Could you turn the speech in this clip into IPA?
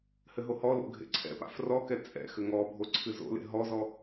hɘɦohɔlo̰ ɡʱḛǀʰɛ̰pa̰ frɔkɛ t͡sʼɛ̰ xɘŋɔbʱo ǀʰɨzo̰lḛ ɦɔzɔ

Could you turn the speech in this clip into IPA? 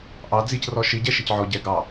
ʔɑ d͡zicrɔ ʃiɟɛʃec ʕɔɟɛ ɡɑ

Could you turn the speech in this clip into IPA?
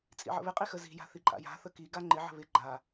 t͡sʼḭʕə̰βɪqʼi xəzi̤ja̤ θiǃʼa̰ja̤θə ki ɡaŋ͡ǃɪʕə̤ βɪ ɡ͡ǃa

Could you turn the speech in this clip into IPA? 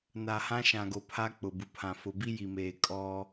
na˨hã˦ ʃã˨ɡo˨ pʰa˦k͡pʊ˨bu˨pʰã˨ fʊ˨bi˦ji˨meː˨ kʼɔ˦

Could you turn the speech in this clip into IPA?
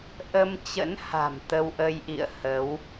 ʔə˧mt͡ɕə̰˧˥n ha̤˨˩mt̪ə˧wʔə˧jʔḭ˧˨ə̯ hə˨˦w

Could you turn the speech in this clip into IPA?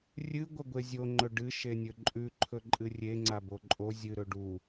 rʲɨ ɡʷɐɡʷezʲo ŋ͡ǃɵɖɨ ʃenʲɵǃʼʉ ǃʰɵǃʼɨrʲe ŋ͡ǀaboǃʼo zʲɨ ɾɵɖu

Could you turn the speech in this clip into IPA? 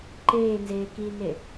ǃeːnzeː kine

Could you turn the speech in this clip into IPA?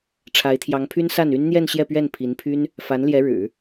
ʈ͡ʂʰa˧˥ɪ̯t̪ʰjɑ˧˥ŋpʰy˥nsa˥˩n y˥nn̪jɛ˥˧nɕjɛ˥˧pɥɛ˥˩n pʰi˧˥npʰy˥n | fa˧˥nljɛ˧˥ɻɻ̩˨˩˦

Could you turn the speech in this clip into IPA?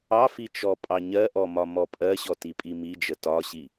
ɑfi t͡ʃɔpʼɑɲɜʔɔ mɒmɔpʼɜɕɔ tipʼimid͡ʒə tɒɕi

